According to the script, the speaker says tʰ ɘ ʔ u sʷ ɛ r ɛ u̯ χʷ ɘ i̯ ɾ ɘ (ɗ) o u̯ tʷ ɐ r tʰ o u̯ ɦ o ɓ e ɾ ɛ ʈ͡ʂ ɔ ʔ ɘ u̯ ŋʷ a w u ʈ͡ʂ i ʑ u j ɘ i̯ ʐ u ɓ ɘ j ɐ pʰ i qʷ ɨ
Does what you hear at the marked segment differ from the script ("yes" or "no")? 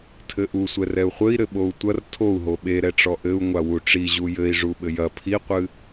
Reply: yes